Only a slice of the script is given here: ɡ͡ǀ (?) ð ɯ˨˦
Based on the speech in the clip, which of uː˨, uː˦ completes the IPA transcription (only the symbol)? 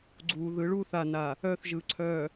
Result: uː˨